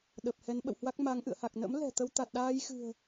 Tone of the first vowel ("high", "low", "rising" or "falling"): low